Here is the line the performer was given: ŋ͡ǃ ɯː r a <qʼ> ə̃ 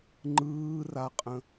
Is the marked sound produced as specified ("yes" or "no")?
yes